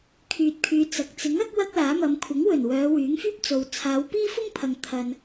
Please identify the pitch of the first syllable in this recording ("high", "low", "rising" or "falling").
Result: low